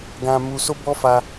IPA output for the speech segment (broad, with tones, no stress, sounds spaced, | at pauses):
ɡ ã˧ m u˧ s o˦ b ɔ˦ f a˧